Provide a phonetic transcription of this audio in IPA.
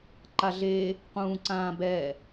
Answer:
ǃ a ɮ e | q ũː ǀ ãː b ɛ

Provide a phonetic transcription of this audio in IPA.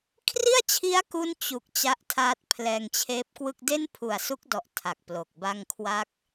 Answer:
kʰ r i˥˩ a̯ t͡ɕʰ i˦˥ a̯ k u˥˩ n t͡ɕ u˨˩ k̚ t͡ɕ a˦˥ ʔ tʰ aː˦˥ t̚ pʰ l ɛː˧ ŋ t͡ɕʰ eː˦˥ p̚ k w ɯ˥˩ k̚ d e˥˩ n pʰ u˨˩ a̯ s u˦˥ k̚ d ɔ˨˩ ʔ tʰ a˨˩ k̚ p l o˨˩ k̚ b a˥˩ ŋ kʰ w a˥˩ k̚

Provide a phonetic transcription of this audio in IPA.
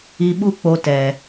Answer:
i˧ ɓ u˦ k͡p o˧ t ɛ˨

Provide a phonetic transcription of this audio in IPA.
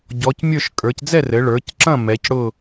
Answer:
ɟ ɔ˩˧ c mʲ ə˞˥˨ ʃ kʼ ə˞˩˧ c d͡z ɛ˥˨ r ɘ˩˧ ɭ ə˞˩˧ c ǁ ɐ̃˥˨ m ɛ˩˧ c ɽ ʊ˥˨

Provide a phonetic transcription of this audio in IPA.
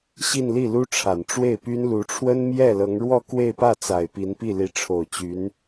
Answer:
ɕ i˥˧ n l i˥˩ l u˥ ʈ͡ʂʰ a˨˩ n ʈ͡ʂ w e˥˩ ɪ̯ p y˥ n l u˧˥ ʈ͡ʂʰ w ə˥ n m j ɛ˥˩ l ɤ˧˥ ŋ ɻ w ɔ˥˧ k w e˥˧ ɪ̯ p ä˥˩ t͡s a˨˩ ɪ̯ p i˧˥ n p i˥˩ l i˧˥ ʈ͡ʂʰ o˨˩ ʊ̯ t͡ɕ y˧˥ n

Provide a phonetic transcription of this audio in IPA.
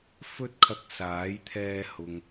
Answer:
f ɵ˥ t̚ kʰ ɐ˧ k̚ s aː˨˥ j t̪ʰ ɛː˧ h ʊ˨ ŋ

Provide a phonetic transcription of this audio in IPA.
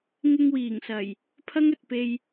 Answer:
ŋ ɪ˧ ŋ w iː˨˩ ŋ s ɐ˨˩ j | pʰ ɐ˥ ŋ ɵ˨ t̚ p e˧ j

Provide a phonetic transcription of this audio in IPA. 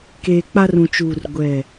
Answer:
k eː˨ k͡p a˦ r ũ˨ t͡ʃ uː˨ r ɡʷ ɛ˦˨

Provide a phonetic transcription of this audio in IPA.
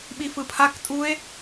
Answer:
ɓ i f ɯ pʰ a k tʼ u e̯

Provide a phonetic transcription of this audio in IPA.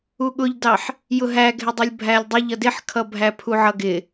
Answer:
u ɠ ʊ ʎ d ɑ ħ | j ʊ ɦ æ ɡʱ ɪ dˤ ʌ lʲ bʱ æ lʲ dˤ ʊ ʎ ʌ d ɪ ħ kʰ ʌ bʱ æ pʰ u ʕ ʌ ɡ ɪ

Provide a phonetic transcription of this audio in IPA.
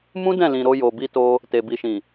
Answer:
m ũ˦ d ɛ̃˦˨ l ĩ˨ ɾ o˧ j o˨ b i˧ t o˧ | t e˨ b i˨ ʃ ĩ˨

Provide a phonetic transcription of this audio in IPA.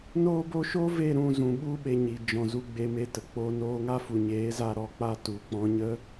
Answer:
n oː˦ b o˦ ʃ o˦ v e˦˨ ɾ ũ˦˨ z ũ˨ ɓ u˦ ɓ e˧ ɲ i˨ d͡ʒ ɔ̃˨ z u˧ ɡ͡b e˧ m e˧ t ə˨ k͡p o˧ n oː˧ ŋ a˦ f u˨ ɲ eː˨˦ z a˦ ɾ ɔ˧ k͡p a˦ t u˨ k͡p ɔ̃˧ ɲ ə˦

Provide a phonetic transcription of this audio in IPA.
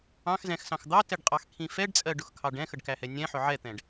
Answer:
ɑ̃ x z ɛ̃ x s ɑ̃ x d̪ ɑ t ɛ ɖ qʼ ɑ x kʰ ĩ f ɛ ɖ t͡sʼ ɜ ɖ ʊ x kʰ ɑ ɖ ɛ̃ x ə ɖ k æ h ɛ nʲ ɛ̃ ħ ʊ ʕ ɛ t̪ ɛ̃ ɖ

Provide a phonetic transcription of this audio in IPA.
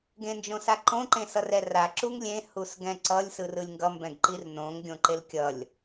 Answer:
ɡ ẽ n d͡ʒ õ s a ǃ õ ǃ ẽ s ʌ r ɛ r a ǁ u ŋ lʲ ẽ h u s ɡ ɛ̃ ǀ ʌ lʲ s ɯ r ɯ lʲ ŋ ɡ ʌ m b ɛ̃ ɡ ǃ i r n õ ŋ ɡʲ õ ǃ e l kʲ ʌ lʲ

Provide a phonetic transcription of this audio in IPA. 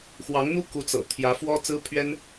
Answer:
x w ɑ˧˥ ŋ n̪ u˥ k u˧˥ t͡s ɤ̰˨˩ t̪ʰ j ä˧˥ f w ɔ˥ t͡s ɹ̩˥ pʰ ɥ ɛ˥ n

